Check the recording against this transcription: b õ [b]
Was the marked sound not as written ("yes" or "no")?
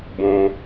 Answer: yes